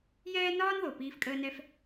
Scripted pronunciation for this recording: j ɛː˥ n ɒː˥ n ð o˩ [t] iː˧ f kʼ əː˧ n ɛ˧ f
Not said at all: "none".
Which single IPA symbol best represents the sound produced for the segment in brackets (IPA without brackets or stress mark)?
p